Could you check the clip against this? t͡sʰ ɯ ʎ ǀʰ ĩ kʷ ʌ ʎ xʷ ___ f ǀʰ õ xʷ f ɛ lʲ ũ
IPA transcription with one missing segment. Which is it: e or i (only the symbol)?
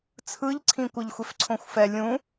e